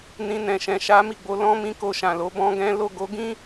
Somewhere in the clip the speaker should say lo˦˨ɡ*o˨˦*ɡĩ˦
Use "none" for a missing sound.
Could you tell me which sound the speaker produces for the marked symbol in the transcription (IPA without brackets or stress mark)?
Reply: o˨˦